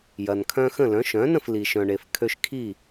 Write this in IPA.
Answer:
j ɐ˩ n kʰ œ̃˧ x ə̃˥˩ l œ̃˩˥ ʃ œ̃˩˥ n ə̃˥˩ f l i˩ ʃ œ̃˩ ɳ e˩ f kʰ ø˧ ʃ kʰ i˥˩

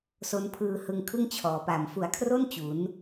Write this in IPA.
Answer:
s o˦˥ n pʰ ɯː˧ h ɯ˧ ŋ kʰ ɯ˥˩ ŋ t͡ɕʰ ɔː˨˩ p a˨˩ m f u˨˩ a̯ kʰ r o˥˩ n t͡ɕ u˩˦ n

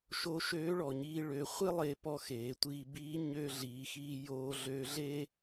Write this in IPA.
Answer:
ʃ o˧˥ ʃ øː˧˥ ɭ ɔ˩ ɲ iː˧ ɭ ø˩˧ χʷ e˥ lˠ e˧˥ p ɔ˧ x eː˩˧ tʷ iː˧ b iː˧˥ ɲ øː˧ ɮ iː˩˧ x iː˧ j oː˧ ɮ ø˧˥ ɮ e˥

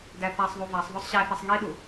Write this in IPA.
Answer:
d æ θ æ sˤ ðˤ u v æ sˤ ðˤ o sˤ ɕ æ θ e sˤ ŋ i ɗ u

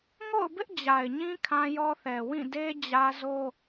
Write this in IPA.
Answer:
ŋ o̰˦˨ ʊ̯ b ɪ˦ ʔ d͡ʑ a˨ ɪ̯ ɲ ĩ˦ kʰ ã˦ j ɔ˦ θ ɛ˨ w ĩ˦˨ d e˦ d͡ʑ ä˦ z o˦

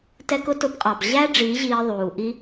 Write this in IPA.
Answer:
t ɛ˧ k ʊ˧ t ʊ˨˦ b qʼ ɑ˨ b ʑ æ˦ ɖ͡ʐ iː˨˦ ʑ iː˧ ðˤ uː˨ ʔ i˦

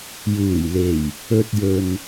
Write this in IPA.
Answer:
j uː˨˩ j l e˨˩ j | ɵ˧ t̚ j ɵ˨ n

